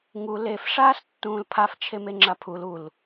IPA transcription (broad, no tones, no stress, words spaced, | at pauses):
ŋu lef ʂaːstːũːlpʰaf t͡ʃʰemeŋ͡ǁapʰul ul